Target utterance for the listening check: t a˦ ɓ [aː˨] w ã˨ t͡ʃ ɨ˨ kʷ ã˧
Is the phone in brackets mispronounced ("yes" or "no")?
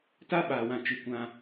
no